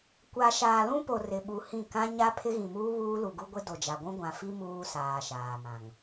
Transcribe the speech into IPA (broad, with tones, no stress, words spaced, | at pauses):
kʷa˨ ʃaː˨lũ˦po˨ rɪ˨ɓu˨ hĩ˦˨ kã˦ ɲa˦ pʰɪ˦ɣĩ˨muː˦ βuː˦lu˨ɡu˦ɡʷɪ˦ do˨d͡ʒa˨ɡʷũ˦ ɡʷã˨fi˦ muː˦saː˨ʃaː˨mã˨ŋ